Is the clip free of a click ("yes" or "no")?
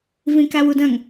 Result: yes